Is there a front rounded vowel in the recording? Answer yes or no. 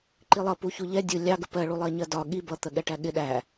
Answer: no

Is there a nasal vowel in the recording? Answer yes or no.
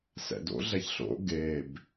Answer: no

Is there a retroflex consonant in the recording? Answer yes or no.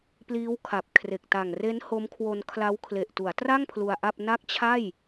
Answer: no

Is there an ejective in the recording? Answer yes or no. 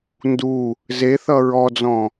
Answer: no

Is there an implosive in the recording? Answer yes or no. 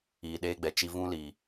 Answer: yes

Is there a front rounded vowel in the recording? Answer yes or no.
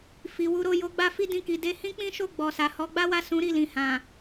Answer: no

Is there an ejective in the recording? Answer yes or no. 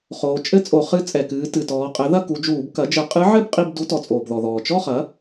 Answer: yes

